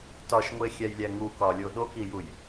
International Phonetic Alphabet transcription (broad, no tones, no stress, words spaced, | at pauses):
tɒʃŋʷexʲæjlʲæ ŋukɒlʲo ɗokijuj